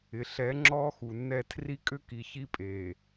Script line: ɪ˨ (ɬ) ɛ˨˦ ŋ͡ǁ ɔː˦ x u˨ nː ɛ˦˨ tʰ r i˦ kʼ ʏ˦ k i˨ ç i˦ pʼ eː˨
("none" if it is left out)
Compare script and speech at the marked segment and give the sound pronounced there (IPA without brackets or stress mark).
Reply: ɬ